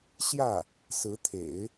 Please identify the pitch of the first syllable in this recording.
falling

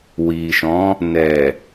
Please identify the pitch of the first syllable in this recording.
low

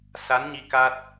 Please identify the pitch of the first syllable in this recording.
rising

